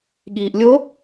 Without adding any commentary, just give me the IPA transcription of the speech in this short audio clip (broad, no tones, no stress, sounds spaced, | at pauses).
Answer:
ɠ iː ʔ lʲ o